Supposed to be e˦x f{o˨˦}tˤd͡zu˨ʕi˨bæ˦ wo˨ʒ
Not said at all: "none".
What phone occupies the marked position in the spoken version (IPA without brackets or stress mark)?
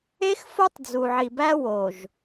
o˦